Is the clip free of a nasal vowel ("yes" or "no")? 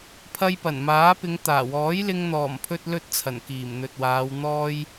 yes